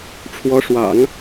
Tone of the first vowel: rising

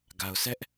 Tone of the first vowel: low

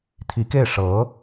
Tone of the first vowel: rising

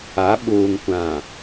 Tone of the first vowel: rising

